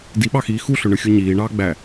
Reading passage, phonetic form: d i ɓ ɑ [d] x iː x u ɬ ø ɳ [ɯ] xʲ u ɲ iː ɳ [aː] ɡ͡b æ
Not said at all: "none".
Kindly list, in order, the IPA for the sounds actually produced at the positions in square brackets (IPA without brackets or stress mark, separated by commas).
none, ɯ, ɑː